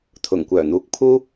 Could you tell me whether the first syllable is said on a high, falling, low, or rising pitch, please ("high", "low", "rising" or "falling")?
low